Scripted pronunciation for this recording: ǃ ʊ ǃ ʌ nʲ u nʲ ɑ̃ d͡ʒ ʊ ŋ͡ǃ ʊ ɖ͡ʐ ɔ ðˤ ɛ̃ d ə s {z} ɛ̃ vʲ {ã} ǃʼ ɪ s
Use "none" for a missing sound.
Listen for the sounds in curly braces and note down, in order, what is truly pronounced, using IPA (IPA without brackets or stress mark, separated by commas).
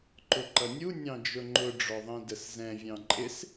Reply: z, ɑ̃